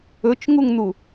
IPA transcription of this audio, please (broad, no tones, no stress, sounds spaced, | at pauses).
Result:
ɵ t͡ʃ ŋ u ŋ n̪ u